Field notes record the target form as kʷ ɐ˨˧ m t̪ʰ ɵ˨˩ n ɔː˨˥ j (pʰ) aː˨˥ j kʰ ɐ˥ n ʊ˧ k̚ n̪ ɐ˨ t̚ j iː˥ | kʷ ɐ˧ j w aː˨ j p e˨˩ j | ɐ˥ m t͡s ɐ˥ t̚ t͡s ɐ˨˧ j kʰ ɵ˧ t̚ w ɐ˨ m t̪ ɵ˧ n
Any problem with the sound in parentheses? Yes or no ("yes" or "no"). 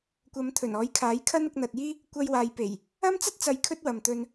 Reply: yes